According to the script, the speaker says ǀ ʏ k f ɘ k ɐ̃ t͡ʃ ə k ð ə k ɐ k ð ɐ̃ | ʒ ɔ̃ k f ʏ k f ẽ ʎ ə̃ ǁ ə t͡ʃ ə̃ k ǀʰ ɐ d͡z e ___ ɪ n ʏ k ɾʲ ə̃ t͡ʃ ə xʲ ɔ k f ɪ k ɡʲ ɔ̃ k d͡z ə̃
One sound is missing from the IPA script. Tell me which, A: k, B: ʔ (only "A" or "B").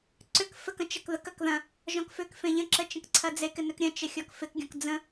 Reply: A